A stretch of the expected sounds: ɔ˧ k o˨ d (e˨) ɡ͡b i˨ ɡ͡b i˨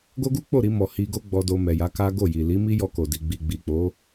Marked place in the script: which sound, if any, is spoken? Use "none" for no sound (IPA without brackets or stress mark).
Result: i˨